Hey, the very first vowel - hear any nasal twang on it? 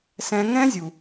yes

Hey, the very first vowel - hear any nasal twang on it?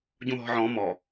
yes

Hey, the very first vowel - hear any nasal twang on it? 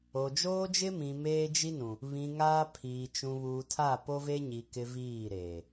no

